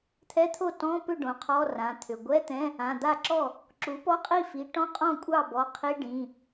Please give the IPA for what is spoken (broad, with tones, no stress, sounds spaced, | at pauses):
t̪ʰ ɛ˧˥˧ t̪ʰ o˥˩ t ɔ̃˧˥˧ p ʏ˥˩ ɖ õ˩˥ qʰ ɔ˧˥˧ r ã˩˧˩ t̪ʰ ʏ˩˧˩ ɡʷ ɛ˧˥˧ t̪ ɛ̃˧˥˧ | ã˩˧˩ d̪ a˥˩ ǁ ɔ˥˩ | ǁ u˩˥ p ɔ˧˥˧ qʼ i˥˩ f i˩˥ ʈ ɔ̃˧˥˧ qʼ ɔ̃˥˩ kʷʼ ɑ˥˩ b ɔ˩˧˩ qʰ i˧˥˧ ɖ ĩ˩˧˩